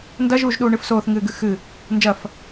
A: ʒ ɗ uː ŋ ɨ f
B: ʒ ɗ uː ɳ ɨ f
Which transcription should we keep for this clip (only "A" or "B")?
B